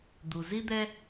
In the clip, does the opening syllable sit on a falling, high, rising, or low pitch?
low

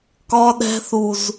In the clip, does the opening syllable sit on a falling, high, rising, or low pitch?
high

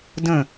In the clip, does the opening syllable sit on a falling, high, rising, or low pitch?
falling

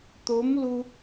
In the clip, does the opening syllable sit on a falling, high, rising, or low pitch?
rising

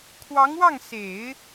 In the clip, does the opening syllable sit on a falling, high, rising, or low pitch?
rising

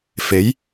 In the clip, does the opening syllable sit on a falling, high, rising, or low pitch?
rising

